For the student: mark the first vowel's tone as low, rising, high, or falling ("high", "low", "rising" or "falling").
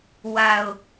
low